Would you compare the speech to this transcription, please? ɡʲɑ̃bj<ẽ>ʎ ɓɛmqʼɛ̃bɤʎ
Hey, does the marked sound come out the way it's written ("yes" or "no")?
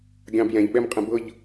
no